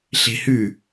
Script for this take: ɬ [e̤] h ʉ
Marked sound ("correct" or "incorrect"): correct